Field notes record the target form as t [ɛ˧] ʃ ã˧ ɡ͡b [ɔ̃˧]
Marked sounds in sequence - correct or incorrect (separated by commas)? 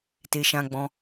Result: incorrect, correct